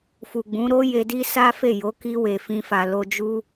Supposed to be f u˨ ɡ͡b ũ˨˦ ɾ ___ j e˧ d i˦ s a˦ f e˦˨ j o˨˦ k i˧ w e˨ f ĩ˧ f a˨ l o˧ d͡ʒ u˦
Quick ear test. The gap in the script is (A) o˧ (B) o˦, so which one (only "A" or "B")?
B